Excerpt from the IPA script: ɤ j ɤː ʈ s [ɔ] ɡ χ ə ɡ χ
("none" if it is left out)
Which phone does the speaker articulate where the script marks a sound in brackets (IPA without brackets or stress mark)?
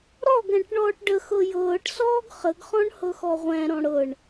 ɔː